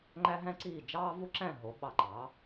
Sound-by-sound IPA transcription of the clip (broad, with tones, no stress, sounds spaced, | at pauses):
ŋ͡ǃ æ˥ ɦ æ̃˥ ǀ iː˥˩ d͡ʒ ɑː˥ v u˥ ǁ æ̃˥˩ ɦ o˩˥ ɓ ɑ˧ ǃ ɑː˩˥